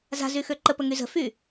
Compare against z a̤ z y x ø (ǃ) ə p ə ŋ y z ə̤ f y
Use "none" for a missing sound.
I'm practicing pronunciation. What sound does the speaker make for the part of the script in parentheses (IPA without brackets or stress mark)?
ǃ